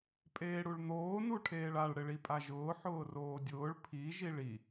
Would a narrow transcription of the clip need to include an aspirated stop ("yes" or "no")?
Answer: yes